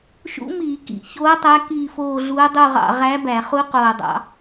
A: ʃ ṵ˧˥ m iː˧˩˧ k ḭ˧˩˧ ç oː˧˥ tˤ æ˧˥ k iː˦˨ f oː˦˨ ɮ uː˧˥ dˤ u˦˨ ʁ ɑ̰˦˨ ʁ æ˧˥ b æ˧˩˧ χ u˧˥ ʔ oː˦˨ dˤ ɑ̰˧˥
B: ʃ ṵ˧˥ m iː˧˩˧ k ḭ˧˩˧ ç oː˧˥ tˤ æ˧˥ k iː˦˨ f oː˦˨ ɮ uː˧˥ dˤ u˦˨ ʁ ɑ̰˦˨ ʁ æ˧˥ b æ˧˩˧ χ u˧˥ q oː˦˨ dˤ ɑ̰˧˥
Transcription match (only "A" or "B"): B